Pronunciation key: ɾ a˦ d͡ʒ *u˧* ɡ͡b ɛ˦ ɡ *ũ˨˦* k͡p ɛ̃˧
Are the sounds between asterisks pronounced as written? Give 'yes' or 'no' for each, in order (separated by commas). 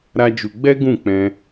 yes, no